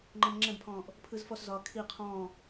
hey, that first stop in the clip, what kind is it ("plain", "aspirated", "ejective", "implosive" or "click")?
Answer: click